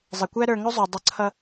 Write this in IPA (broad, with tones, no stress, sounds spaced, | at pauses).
zˤ ɪ˩ kʷ æ˥ ɾ ə˞˧ ŋ ʊ˥ zˤ u˩ dˤ ʊ˧ ǀʰ ʌ˥